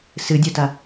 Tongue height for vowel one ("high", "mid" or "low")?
high